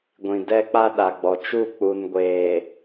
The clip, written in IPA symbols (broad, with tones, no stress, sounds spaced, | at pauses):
ɡʷ ĩ˨ d ɛ˦ k͡p a˦ ɗ a˨ ɡ͡b ɔ˨ t͡ʃ u˦˨ k͡p u˨ n ɡʷ eː˨